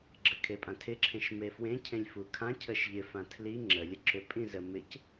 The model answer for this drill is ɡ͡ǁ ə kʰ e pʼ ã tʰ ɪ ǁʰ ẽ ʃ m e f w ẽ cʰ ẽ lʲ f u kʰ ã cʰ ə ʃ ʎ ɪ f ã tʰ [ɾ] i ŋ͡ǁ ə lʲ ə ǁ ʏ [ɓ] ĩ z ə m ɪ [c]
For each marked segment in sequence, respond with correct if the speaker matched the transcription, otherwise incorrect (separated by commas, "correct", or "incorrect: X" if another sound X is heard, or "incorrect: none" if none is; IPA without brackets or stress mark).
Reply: incorrect: l, incorrect: pʼ, correct